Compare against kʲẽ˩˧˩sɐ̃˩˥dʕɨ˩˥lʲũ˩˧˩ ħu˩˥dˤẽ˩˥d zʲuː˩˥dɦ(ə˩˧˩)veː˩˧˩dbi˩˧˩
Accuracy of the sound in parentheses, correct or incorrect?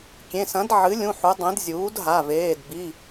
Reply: incorrect